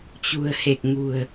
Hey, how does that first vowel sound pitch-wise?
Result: low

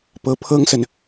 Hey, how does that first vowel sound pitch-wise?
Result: rising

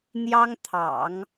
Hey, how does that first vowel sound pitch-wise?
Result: high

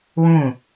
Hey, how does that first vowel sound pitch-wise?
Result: falling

